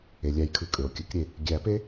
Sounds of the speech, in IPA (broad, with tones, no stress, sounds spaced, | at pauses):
e˩ lʲ æ˨˩˦ j kʰ ɯ˩ kʼ ø˩ o̯ kʲ ɯ˨˩˦ k ɾʲ e˩ | ɡʲ æ˨˩˦ p e˦˥